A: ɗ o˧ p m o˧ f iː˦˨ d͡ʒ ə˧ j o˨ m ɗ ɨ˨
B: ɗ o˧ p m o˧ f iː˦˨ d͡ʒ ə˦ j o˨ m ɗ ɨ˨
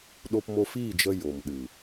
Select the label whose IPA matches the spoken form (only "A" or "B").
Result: A